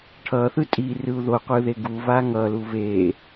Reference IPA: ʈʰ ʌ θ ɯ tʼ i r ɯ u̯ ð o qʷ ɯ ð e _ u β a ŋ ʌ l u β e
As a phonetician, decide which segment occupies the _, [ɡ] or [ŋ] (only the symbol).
ɡ